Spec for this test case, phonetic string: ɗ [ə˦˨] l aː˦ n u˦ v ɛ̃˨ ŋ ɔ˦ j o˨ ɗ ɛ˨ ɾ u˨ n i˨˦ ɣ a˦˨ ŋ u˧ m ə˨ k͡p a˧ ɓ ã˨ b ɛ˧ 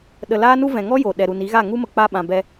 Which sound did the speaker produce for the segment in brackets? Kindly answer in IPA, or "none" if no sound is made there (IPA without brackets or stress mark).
ə˨